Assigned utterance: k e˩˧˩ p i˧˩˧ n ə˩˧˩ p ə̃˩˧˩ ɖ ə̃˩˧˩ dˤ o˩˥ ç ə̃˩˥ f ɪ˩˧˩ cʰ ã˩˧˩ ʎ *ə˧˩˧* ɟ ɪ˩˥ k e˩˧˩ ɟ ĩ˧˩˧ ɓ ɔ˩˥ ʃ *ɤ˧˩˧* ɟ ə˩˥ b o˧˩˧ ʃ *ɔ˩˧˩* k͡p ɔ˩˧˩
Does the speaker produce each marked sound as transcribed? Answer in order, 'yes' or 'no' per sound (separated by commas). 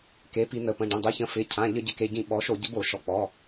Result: yes, no, yes